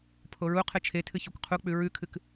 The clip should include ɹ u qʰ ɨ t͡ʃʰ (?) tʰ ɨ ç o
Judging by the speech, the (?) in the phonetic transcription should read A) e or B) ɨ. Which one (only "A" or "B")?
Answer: A